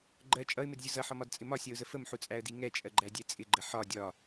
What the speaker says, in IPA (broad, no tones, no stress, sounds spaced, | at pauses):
ɡ͡ǃ ɜ t͡ʃʼ ʌ ɪ̯ m ɪ d zʲ ʊ z ʌ ħ ɒ m ɒ d t͡sʼ ɪ m ɒ sʲ ɜ ʊ̯ z ə f ə m ħ u t͡sʼ æ ə̯ d i ŋ ɛ t͡ʃʼ ɜ ɡ͡ǃ æ dʲ ɛ t͡sʼ ɪ ɡ͡ǃ ə ħ ɒ dʲ ɒ